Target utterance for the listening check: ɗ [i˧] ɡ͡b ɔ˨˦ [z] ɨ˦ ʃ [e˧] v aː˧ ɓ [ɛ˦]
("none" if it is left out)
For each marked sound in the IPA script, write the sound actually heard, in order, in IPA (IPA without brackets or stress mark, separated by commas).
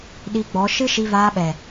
i˧, ʃ, i˧, ɛ˨